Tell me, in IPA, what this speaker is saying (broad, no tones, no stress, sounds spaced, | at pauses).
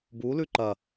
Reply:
b u l ʉ ǃ ɐ